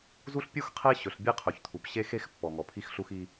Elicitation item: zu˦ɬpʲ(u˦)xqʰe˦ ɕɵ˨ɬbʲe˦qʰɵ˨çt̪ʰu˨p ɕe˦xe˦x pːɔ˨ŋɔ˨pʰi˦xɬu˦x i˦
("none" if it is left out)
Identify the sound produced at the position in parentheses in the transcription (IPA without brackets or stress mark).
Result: u˦